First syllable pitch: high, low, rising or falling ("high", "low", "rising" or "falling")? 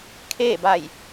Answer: falling